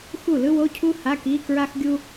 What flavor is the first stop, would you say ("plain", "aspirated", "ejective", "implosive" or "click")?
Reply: aspirated